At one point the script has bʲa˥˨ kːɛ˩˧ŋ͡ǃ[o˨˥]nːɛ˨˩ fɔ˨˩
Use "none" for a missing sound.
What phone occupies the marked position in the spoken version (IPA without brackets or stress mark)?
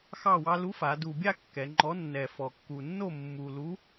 ɔ˨˥